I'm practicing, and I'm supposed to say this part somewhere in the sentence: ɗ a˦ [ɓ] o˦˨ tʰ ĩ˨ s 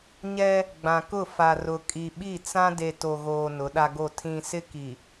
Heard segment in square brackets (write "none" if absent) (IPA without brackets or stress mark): ɡ